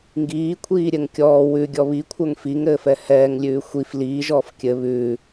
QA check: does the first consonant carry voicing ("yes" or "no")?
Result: yes